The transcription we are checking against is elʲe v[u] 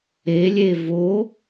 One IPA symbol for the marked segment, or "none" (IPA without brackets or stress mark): o